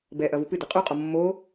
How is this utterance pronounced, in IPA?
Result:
b ɛ ʔ ɐ v u p ɨ d ɛ qʼ u qʼ ɔ mː o

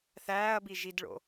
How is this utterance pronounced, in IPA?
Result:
θ æː ɐ̯ b i ʒ i d ɭ o̰

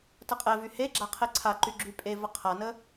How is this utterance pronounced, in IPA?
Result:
t ə qʼ ɛ v y h e ɡ͡ǁ a qʰ e ǀʰ a ǃ y ɡ͡ǁ y pʼ e v ə qʰ a n ə

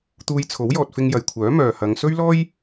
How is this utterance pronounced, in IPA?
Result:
t̪ uː˧ j t͡sʰ o˨˥ w j ɔː˨ t̚ f ɪ˧ ŋ j ɐ˨ j kʷʰ œː˨˥ m œː˨ h ɐ˨˧ ŋ s ɵ˥ ɥ l ɔː˥ j

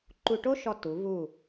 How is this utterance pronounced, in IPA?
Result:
ǃ u˧ ʈ o˥ ʃ ɔ˧ t u˩˧ v u˧˩

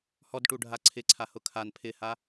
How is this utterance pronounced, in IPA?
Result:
h ɔ d ʈ u ɖʱ a ǀʰ ɪ ǀʰ a h ʊ kʰ a n pʰ ɪ h a

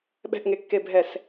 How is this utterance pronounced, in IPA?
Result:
ɓ ɛ̤ ʔ ŋ e kː e bʱ ɛ s

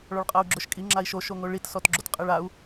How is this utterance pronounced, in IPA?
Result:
ɭ ɔ ɭ qʼ a u̯ ɡ͡ǁ ʊ ʃ kʼ i ŋ͡ǁ a i̯ ʃ o ʃ o ŋ o ɭ i t s ɔ t ɡ͡ǁ o t qʼ ɛ ɭ a u̯

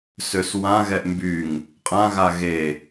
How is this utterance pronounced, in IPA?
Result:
s ø s w ã ɣ ɛ ʔ m b y ŋ | qʼ ã ɣ a ɣ e

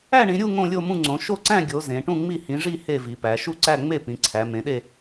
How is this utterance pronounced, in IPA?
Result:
æ˥˧ ɳ ĩ˨˦ ɾʲ u˥˧ ŋ õ˥˧ lʲ o˥˧ m ũ˥˧ ŋ͡ǀ õ˨˦ ʃ o˥˧ ǀ æ̃˥˧ ɡʲ o˨˦ z ẽ˨˦ ʈ ũ˥˧ ŋ͡m i˥˧ h ĩ˨˦ ʐ i˥˧ h e˥˧ v i˨˦ p æ˨˦ ʃ u˥˧ ǀ æ˥˧ ŋ͡m e˥˧ p ĩ˨˦ ǀʰ æ˨˦ m ẽ˨˦ ɗ e˥˧

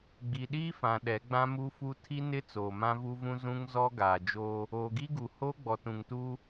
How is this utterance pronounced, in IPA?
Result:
ɡ͡b i˨ ɗ iː˦ f ã˨ ɗ ɛ˨˦ ɡ͡b ã˦ m u˦ f u˦ tʰ i˦ n ɪ˦ t͡s oː˨ m ã˦ v u˦ v ũ˦ z ũ˦ ŋ z ɔ˦ ɡ aː˨ d͡ʒ oː˦ | oː˨ ɡ i˦ ɡ u˨ h oː˦ ɡ͡b ɔ˨ t ũ˨ ŋ t u˦

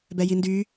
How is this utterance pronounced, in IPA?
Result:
b ɛ j i n d y

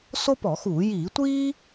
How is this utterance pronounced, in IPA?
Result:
s o˥ p ɔ˧˩˧ x uː˧˩˧ j iː˧˩˧ tʷ iː˥

